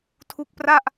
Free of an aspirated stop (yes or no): no